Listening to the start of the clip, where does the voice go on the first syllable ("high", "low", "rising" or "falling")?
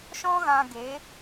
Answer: high